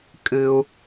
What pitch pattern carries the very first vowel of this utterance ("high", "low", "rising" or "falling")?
low